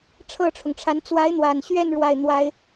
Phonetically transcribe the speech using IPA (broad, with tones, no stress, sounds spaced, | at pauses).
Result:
ʈ͡ʂʰ ɤ˥˩ ʈ͡ʂʰ ʊ˩ ŋ ʈ͡ʂʰ a˧˥ n t͡s w a˧˥ ɪ̯ n̪ w a˨˩ n ɕ ɥ ɛ˥˧ n ɻ w a˥˩ ɪ̯ n̪ w a˥ ɪ̯